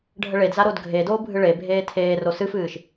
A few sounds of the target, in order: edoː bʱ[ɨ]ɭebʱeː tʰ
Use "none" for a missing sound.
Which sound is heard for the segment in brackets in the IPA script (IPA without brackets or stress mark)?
ɨ